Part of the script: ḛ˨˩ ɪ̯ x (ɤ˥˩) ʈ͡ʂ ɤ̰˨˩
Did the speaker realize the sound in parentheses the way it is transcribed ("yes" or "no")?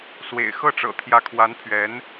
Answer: yes